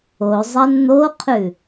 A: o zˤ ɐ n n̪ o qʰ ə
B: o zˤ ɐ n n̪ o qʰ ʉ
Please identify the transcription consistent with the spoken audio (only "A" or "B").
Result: B